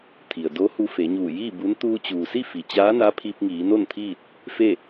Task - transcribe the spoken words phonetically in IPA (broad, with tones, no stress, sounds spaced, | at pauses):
t̪ʰ i˩ ə̯ d o˧˥ h u˧ f e˩˧ ɲ uː˧˩ j iː˥˨ b u˧˥ n t̪ uː˧ t͡ɕ uː˩ s i˥˨ f i˩ t͡ɕ aː˧˥ n a˧˥ pʰ i˧ p̚ ŋ iː˩˧ n o˥˨ n t̪ʰ iː˥˨ t̚ | f e˥˨